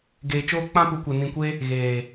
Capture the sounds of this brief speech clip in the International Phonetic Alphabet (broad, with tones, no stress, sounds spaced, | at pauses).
ɡ eː˧ t͡ʃ oː˦ k͡p ã˦ p u˧ kʷ ɛ˧ n ĩ˧ kʷ e˦ | ɣ eː˨